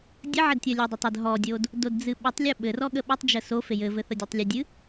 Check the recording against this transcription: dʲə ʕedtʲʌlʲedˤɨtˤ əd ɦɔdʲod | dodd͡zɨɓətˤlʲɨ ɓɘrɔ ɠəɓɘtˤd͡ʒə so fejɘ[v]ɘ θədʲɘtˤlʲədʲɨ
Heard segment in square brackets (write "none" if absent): v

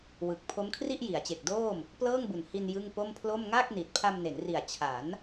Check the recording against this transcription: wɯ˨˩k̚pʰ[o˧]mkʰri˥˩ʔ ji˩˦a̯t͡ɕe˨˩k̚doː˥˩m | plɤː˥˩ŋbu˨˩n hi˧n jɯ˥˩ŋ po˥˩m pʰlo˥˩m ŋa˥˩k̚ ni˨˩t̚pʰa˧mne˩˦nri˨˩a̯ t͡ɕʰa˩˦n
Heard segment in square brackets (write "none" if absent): o˦˥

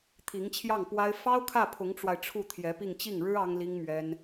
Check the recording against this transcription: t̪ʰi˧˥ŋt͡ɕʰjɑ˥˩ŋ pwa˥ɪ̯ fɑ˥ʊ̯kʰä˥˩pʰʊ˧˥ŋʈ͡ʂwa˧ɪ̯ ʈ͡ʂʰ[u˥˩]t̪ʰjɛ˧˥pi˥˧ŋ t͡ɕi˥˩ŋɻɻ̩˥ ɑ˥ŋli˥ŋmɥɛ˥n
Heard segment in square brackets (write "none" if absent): u˥˩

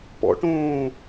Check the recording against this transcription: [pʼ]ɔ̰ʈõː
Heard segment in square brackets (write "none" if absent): p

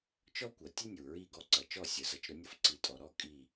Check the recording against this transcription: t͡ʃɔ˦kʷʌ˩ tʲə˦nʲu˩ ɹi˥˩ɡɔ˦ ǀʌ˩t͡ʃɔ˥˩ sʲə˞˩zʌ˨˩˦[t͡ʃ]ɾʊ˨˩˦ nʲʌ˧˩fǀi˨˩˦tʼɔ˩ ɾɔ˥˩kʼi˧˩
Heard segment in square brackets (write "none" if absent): t͡ʃ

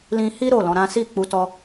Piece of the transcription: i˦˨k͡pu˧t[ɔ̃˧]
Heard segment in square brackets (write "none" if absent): ɔ˧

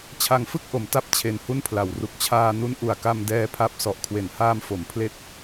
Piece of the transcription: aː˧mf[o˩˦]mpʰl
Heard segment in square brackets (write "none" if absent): o˩˦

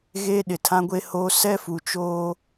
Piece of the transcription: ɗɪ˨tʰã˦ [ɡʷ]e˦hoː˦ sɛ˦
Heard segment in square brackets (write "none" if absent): ɡʷ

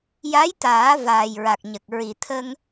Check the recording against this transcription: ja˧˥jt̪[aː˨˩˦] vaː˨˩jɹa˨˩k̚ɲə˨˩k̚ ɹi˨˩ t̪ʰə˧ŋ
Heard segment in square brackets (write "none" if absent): aː˨˩˦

